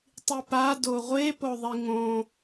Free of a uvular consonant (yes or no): no